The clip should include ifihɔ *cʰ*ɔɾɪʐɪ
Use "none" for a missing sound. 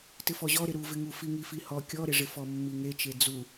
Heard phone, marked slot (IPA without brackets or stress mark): kʲ